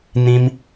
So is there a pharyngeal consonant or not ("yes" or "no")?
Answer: no